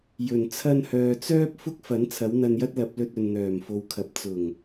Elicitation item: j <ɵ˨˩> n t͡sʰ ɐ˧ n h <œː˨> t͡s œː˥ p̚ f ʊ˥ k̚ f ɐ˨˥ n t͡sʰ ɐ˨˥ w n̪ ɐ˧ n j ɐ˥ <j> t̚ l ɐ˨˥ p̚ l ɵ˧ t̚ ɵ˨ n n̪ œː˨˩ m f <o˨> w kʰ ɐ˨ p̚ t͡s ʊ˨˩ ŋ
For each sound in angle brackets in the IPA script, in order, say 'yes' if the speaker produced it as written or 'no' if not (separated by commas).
yes, yes, no, yes